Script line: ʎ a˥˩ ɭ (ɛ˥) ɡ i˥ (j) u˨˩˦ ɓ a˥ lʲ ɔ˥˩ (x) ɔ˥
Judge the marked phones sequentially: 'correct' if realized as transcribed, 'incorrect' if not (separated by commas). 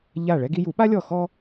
correct, correct, correct